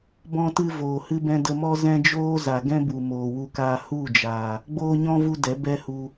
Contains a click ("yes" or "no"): no